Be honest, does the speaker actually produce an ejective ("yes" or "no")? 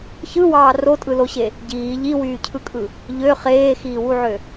yes